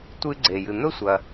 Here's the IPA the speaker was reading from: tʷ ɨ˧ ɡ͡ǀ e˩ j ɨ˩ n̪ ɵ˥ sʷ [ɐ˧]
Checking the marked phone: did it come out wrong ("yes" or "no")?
yes